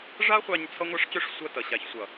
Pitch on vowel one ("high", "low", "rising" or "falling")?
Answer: high